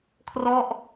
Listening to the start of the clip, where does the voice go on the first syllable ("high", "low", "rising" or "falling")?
falling